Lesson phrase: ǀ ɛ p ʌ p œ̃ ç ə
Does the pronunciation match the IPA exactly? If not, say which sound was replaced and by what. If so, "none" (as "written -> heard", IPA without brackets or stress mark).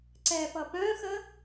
ç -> x